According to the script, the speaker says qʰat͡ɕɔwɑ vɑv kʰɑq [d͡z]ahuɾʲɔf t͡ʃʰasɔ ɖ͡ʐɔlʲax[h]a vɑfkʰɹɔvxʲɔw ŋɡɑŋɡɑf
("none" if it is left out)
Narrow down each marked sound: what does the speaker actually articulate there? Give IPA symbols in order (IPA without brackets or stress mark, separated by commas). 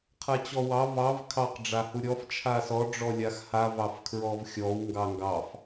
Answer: ɖ͡ʐ, h